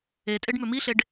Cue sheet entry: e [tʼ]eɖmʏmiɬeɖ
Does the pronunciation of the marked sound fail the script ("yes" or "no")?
no